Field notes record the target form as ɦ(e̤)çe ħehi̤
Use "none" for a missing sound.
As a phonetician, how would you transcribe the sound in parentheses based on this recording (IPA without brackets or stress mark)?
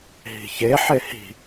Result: i̤